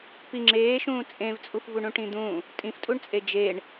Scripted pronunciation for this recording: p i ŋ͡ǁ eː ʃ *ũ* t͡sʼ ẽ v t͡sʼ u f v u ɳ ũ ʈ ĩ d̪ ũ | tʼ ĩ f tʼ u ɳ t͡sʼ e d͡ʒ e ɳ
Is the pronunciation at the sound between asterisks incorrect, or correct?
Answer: incorrect